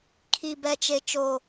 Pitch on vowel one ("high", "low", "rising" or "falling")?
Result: low